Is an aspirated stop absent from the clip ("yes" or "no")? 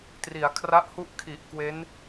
no